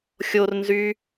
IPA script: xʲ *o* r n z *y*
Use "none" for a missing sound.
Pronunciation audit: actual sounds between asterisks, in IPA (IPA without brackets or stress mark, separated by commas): o, y